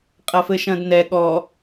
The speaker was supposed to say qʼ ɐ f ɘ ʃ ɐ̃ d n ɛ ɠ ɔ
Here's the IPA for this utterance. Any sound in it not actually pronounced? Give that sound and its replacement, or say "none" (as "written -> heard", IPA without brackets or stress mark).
none